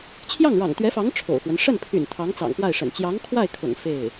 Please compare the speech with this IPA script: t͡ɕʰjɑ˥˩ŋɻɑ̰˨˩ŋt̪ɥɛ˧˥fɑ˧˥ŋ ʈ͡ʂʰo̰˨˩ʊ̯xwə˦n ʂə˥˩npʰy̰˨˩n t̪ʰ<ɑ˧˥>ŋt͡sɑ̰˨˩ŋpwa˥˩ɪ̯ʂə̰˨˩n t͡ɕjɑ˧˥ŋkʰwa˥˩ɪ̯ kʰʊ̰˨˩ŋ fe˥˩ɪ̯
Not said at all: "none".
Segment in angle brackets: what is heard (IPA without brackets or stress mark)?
ɑ˧˥